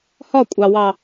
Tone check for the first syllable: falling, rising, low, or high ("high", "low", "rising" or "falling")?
falling